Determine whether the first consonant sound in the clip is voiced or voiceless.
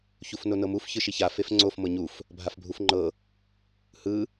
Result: voiceless